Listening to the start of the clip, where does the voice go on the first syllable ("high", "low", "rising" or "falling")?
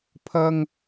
high